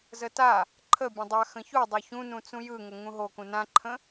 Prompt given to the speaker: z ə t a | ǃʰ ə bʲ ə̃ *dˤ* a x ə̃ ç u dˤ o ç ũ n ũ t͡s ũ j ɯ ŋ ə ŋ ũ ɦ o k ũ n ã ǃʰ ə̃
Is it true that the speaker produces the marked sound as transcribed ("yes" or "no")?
yes